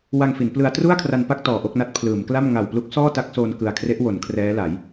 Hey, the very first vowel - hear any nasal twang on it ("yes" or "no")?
no